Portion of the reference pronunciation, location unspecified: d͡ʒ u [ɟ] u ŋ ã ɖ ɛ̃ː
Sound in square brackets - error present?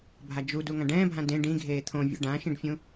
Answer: yes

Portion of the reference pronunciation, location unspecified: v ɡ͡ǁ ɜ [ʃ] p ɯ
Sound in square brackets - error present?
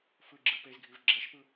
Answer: no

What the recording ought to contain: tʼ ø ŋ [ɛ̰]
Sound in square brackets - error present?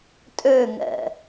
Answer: no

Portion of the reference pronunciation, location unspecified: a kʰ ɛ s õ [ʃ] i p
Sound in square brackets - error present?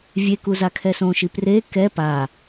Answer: no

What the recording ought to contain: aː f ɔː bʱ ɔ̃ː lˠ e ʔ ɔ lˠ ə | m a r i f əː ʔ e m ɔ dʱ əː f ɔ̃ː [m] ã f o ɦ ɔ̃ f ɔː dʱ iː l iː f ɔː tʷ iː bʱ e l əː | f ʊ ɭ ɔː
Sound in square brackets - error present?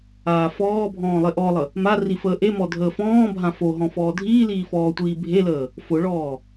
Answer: yes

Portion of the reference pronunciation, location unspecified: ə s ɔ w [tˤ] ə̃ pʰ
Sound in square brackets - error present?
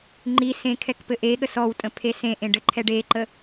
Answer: yes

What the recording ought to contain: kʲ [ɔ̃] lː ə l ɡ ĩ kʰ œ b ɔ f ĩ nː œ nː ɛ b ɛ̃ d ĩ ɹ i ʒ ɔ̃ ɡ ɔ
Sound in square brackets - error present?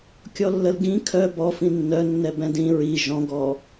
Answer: yes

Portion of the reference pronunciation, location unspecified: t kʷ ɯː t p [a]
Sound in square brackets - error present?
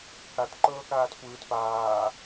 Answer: yes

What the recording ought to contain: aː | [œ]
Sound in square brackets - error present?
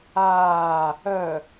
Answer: no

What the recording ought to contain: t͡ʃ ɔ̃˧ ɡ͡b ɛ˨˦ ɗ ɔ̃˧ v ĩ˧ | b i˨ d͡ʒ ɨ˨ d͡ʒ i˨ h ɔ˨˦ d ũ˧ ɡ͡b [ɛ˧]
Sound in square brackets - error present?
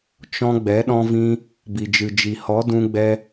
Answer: no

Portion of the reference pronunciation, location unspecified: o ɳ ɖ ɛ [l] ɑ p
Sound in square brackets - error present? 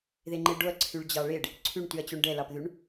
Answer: no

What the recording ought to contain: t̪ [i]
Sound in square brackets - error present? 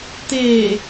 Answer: yes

